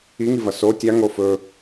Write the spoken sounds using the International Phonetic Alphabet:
i ŋ i v ɐ s o tʲ a ŋ o f ɵ

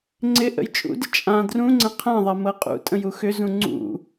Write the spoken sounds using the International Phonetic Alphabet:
ŋ͡ǀ ɪ ʔ ə̰ j t͡ʃʼ ṵ d ɪ t͡ʃʼ ã d r ũ ŋ͡ǀ ə̃ qʰ ã ðˤ a m ɤ qʼ ṵ tʼ ə̃ j u x ʏ z ũ ŋ͡ǀ ṵ

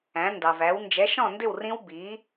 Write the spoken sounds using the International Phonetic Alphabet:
æ̃˩˥ n d ɑ˩ v æ˩˥ w n d͡ʒ ɛ˩˥ ʃ ɔ̃˥˩ n d ɪ˥˩ w r ĩ˦˥ w b i˩˥

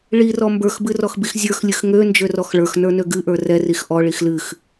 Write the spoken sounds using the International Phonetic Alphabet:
ɭ i r ɔ m b ə˞ x b ɨ r ɔ x b i x zʲ ə˞ x lʲ ɨ x ŋ ø n d͡ʒ ø r ɔ x ɭ ə˞ x n ə˞ n ø ɡ ɨ ʔ ə˞ r ɛ r i x ʔ ɔ ɭ i x l ɨ x

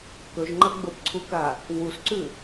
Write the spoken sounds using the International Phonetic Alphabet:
k ɵ ʒ ŋ͡ǃ ɐ ɡ͡b o p ǀʰ u k a | w u s ǀ ʉ

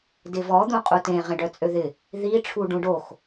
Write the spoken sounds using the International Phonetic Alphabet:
d ɪ v ɔ d̪ ũ qʼ u t ẽ ʁ ẽ ɖ œ t͡sʼ ø ð ɪ | ð i ʈ͡ʂʰ u ɖ ũ ɖ o x

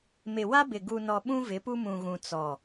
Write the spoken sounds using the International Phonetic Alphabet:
m ɪ˨ w a˦ b ɪ˨ ɡ u˨ n ɔ˨ ɓ ũ˦ v ɪ˨˦ p u˦ m ũ˨ ɣ ũ˨ t͡s ɔ˨

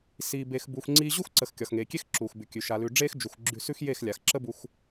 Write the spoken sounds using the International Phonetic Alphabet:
s iː˨ b e˨ x b uː˨ x ŋ͡ǀ iː˧ ʑ u˦ x ǀ ə˨ x kʲ ɒ˨ x ŋ eː˨ kʲ e˦ x ǁ uː˨ x b ʉ˨ kʲ ʉ˨ ʃ a˨ l ʉ˨ ɖ͡ʐ eː˦ x d͡ʒ u˨ x ɡ͡ǁ ʉ˧ s ʉ˦ x j e˦˨ x lʲ a˨ x ǁ ə˦ b u˧ x

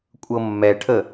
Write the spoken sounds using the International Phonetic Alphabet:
kʷʼ ɤ mː ɛ ʈʰ ə

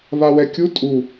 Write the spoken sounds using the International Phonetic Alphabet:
β a w ɛ kʲ u tʼ u

